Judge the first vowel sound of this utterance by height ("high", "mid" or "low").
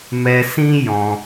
mid